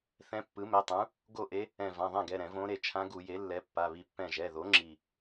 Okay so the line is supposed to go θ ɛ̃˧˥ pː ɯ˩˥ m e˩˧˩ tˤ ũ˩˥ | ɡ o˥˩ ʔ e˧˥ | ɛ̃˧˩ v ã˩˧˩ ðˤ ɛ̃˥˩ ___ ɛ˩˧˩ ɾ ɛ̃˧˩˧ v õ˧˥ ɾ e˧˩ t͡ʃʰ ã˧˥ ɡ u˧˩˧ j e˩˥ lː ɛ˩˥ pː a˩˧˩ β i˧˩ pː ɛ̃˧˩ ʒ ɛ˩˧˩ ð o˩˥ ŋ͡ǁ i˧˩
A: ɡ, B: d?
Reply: A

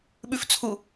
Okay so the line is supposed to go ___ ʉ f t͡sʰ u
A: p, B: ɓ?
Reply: B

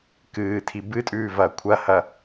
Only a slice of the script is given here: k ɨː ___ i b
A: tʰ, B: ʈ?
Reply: A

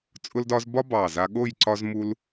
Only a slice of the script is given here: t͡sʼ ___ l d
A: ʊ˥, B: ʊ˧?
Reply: A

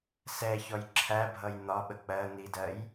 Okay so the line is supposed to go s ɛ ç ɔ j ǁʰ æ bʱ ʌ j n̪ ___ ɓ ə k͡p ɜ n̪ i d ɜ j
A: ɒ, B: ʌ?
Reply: A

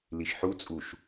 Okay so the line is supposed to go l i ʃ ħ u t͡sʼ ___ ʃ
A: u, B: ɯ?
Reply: A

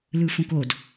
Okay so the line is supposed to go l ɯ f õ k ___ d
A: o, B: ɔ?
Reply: A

